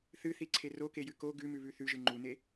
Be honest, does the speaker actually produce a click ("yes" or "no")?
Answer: yes